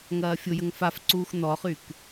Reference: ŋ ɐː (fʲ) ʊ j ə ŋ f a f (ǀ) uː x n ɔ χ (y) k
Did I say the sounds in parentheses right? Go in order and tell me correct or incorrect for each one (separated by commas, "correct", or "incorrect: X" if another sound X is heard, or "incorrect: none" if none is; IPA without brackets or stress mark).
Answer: correct, correct, correct